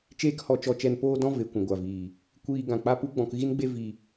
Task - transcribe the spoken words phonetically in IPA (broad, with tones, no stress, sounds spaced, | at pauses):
t͡ʃ eː˦ k h ɔ˧ t͡ʃ ɔ˧ t͡ʃ ɛ˧ n p oː˦ d ɔ̃˦ v e˧ kʷ ũ˨ ɡʷ a˨ v iː˨ | kʷ iː˧ ɡ ã˨ k͡p a˦ p u˦ ɡ͡b ɔ̃˧ k ɣ i˦ n ɡ͡b e˦ v i˧